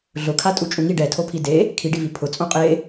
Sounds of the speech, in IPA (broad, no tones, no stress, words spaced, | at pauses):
ɮʊkʰatʼut͡ʃʼũ ŋi ɖɛtʰopʰi de | kʰiɖivi pʰʊt͡sʼõ qʼe